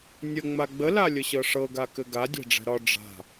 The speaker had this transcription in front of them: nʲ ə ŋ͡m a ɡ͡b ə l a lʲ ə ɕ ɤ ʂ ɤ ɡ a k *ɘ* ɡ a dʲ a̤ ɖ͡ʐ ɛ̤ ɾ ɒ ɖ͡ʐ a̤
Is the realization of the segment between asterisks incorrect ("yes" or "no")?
no